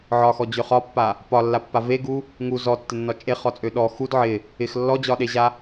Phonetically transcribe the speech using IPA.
ʕ ɒ x ɔ d͡ʑ ø χ ɒ pː a | p ɒ lː a pː a v e ɡ u | ŋ u z ɔ tː ɪ nː ɒ t͡ʃʼ e χ ɔ t͡sʼ ø ɗ ɔ x u d ʕ ɪ | ɪ x lː ɔ d͡ʑ ɒ ɗ e ʑ a

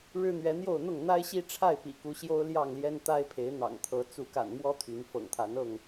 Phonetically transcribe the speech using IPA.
ɻ ɻ̩˦ n̪ ɥ ɛ˨˦ n̪ j o˥˨ ʊ̯ n̪ ʊ˥˨ ŋ n̪ a˦ ɪ̯ ɕ i˦ ʈ͡ʂʰ a˥˨ ɪ̯ p ḭ˨˩ k u˨˦ ɕ j o˦ ʊ̯ l j ɑ˥˨ ŋ l j ɛ˦ n t̪ a˦ ɪ̯ pʰ e˨˦ ɪ̯ n̪ ɑ̰˨˩ ŋ t̪ʰ ɤ˨˦ t͡s u˨˦ k a̰˨˩ n m w ɔ˦ t̪ʰ y˨˦ n f ɤ̰˨˩ ŋ t̪ʰ a˨˦ n ɤ˥˨ ŋ

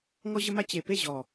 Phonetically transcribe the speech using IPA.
ŋ ɔ˦ ʑ ə˦ m a˦ t͡ɕ e˨ p e˦˨ ʑ ɔ˨

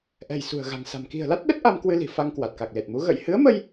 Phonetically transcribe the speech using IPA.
ʔ ɛ̤˨˩ j s ṳ˨˩ ə̯ ɣ a̤˨˩ ŋ s a̤˨˩ m k i̤˨˩ ə̯ l a˦˥ t̚ ɗ ə˦˥ t̚ ʔ a˧ m k w ɨ˧ l i̤˨˩ f a˧ ŋ k w a˨˩ t̚ k a˨˩ k̚ l e˨˩ t̚ m u˨˦ ɣ ə̰˧˨ j h ɨ˨˦ ə̯ m ə˧ j

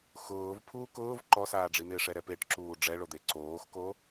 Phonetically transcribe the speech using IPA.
x ʊː v pʰ uː k ʊː v ǃ ɔ s aː ɖ͡ʐ i n̪ ɪː ʂ ɛ ɾ ɛ p e ʈ ǁ uː ɖ͡ʐ ɛ ɭ o d̪ e ǀ oː x k o

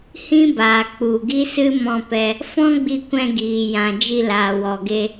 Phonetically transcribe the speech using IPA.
h ĩ˦ b aː˨ k͡p u˨ ɡ i˦ s ɨ˦ m ɔ̃˧ p ɛ˧ | f ɔ̃˦ ɡ͡b i˧ kʷ ɛ̃˧ ɡ iː˨ j ã˨ d͡ʒ i˧ l aː˨ w ɔ˨ ɡ e˧

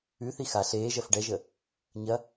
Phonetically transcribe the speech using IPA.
ʉ θ i x a ɬ eː ʒ ɐ f ɖ ɛ ʒ ə | ɲ ɐ

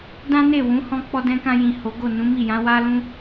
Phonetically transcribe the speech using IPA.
d ã˦ n e˦˨ w ũ˨˦ h ɔ̃˦ k͡p ɔ˦ d ɛ̃˦ k ã˧ j ĩ˨ h o˨˦ ɡ o˦˨ n ũ˨˦ m i˦˨ j ã˨˦ w a˦ l ũ˦

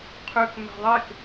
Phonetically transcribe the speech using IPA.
qʰ ø k m æ̤ ðˤ e k

